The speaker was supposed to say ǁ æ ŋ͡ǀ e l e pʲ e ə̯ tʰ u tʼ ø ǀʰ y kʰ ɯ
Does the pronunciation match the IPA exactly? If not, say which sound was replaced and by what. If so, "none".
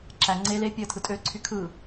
u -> ɯ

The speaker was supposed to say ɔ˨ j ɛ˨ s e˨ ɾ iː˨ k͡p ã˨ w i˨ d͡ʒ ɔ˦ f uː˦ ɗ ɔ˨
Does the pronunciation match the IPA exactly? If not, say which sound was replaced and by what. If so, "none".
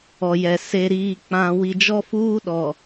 none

